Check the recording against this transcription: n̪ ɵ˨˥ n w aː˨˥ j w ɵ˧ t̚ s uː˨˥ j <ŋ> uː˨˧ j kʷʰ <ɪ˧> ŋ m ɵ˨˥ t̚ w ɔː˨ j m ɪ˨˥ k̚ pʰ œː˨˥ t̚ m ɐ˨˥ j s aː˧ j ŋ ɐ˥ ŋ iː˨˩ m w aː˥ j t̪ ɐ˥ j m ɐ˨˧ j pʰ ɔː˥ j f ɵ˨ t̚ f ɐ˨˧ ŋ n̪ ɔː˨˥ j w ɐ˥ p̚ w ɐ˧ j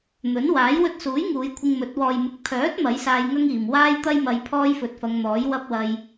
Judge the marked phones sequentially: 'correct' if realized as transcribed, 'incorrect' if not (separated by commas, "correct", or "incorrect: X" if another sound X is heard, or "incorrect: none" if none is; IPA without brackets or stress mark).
correct, correct